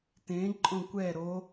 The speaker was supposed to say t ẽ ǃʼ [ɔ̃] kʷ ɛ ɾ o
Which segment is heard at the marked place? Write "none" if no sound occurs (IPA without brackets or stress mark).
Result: õ